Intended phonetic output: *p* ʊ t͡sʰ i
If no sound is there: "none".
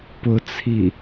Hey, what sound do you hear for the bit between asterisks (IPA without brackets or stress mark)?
p